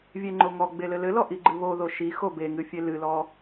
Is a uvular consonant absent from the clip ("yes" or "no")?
yes